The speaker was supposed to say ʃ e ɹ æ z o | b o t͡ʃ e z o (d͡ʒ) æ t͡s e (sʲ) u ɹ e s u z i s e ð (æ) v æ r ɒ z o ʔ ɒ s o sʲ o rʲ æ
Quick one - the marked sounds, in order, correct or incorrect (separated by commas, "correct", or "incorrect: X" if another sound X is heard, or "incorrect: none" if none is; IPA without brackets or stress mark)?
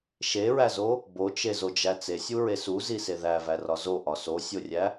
correct, correct, correct